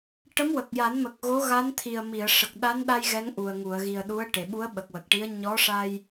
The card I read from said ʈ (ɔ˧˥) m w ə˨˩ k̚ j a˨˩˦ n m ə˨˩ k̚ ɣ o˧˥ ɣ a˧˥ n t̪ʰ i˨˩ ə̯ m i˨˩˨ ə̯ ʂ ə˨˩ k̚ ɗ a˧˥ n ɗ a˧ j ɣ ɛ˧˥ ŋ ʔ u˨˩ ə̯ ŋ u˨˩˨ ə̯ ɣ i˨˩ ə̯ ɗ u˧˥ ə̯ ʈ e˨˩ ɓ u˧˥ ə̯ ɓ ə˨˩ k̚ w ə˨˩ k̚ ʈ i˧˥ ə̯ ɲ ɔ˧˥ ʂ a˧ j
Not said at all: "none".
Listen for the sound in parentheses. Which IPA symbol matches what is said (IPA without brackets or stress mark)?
ə˧˥